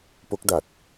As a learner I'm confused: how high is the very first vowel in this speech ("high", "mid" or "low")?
mid